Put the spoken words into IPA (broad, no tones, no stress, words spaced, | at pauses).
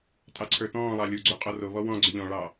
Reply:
tʼɑǀʰə˞tɔ̃ːlˠɑ lʲuɡ͡ǀo qʼɔroβɔ wɔ̃ ɡ͡ǀʏʎɔ̃ɭɑ